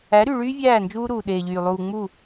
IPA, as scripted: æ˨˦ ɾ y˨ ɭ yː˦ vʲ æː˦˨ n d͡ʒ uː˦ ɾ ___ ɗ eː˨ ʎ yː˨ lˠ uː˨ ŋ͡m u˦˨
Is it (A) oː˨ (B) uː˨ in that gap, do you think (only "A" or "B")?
B